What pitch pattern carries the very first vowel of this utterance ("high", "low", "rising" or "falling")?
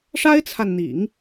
high